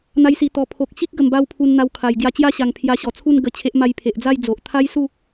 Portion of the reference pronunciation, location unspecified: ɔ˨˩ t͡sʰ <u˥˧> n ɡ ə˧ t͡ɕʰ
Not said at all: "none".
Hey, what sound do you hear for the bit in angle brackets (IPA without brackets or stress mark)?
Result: u˥˧